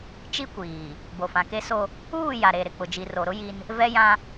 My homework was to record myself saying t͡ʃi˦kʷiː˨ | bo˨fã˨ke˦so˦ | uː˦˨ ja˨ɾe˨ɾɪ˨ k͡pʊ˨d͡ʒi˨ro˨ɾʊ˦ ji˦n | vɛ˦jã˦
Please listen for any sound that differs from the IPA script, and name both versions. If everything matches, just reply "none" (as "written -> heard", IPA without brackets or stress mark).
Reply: none